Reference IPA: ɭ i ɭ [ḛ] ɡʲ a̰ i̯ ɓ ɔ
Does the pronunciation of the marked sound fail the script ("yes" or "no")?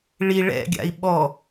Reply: yes